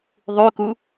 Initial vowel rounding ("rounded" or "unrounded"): rounded